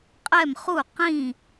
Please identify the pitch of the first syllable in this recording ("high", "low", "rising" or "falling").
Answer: falling